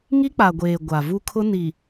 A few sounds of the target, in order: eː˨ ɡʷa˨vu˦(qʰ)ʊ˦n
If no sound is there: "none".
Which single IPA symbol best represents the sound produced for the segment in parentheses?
kʰ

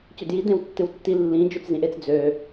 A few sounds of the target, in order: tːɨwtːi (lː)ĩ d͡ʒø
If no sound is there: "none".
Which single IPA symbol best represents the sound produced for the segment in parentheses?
lː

